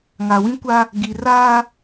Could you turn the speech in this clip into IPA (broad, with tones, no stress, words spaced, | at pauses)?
ŋa˨wĩ˦kʷa˦ | ɡi˨ raː˦